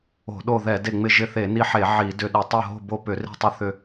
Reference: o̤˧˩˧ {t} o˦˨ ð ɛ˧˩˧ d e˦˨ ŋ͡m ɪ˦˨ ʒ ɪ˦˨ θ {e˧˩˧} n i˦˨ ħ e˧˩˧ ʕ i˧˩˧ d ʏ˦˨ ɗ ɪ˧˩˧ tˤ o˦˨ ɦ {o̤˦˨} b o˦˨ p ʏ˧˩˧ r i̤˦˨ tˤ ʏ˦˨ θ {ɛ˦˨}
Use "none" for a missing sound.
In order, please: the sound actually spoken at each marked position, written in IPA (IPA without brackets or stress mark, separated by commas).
ɗ, e˧˩˧, o̤˦˨, ʏ˦˨